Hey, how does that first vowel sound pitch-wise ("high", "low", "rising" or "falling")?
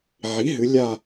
rising